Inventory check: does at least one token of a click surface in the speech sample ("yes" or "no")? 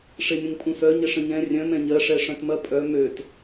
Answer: no